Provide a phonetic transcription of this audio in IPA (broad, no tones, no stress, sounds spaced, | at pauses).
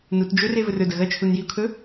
n u t d͡ʒ ɵ r e v ɵ r ɵ d ɐ ɣ ɐ t͡ʃʰ u n j i ʊ̯ kʰ ɵ